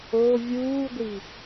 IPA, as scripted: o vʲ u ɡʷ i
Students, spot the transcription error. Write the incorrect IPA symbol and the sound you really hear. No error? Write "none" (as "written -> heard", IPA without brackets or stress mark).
u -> uː